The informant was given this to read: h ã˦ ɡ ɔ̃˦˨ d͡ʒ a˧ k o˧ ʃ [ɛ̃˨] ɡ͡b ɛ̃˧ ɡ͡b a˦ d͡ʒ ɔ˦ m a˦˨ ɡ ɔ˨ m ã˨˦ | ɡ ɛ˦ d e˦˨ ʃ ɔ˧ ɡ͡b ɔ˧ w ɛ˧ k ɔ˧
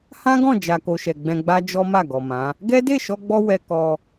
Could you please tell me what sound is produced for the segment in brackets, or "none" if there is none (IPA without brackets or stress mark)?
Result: ɛ˨